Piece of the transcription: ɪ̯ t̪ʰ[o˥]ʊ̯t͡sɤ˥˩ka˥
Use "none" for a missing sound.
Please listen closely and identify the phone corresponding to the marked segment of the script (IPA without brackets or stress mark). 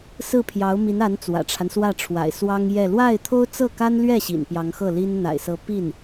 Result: o˥